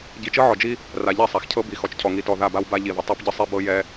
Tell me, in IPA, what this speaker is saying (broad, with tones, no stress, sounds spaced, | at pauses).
ɟ i˨ t͡ʃ ɤ˦ ʕ ɔ˨ d͡ʒ i˦ | r a˨ ʎ ɛ˦˨ sˤ a˨ x cʰ ɤ˦ b i˨ x ɔ˨ t͡ʃ cʰ ɔ˨ ŋ i˨ t ɔ˨ ð a˦˨ b a˦ w b a˦ ʎ i˨ ð ə˨ tˤ ɛ˦ p ɟ ə˦ sˤ i˦ b ɤ˦ j ɛ˦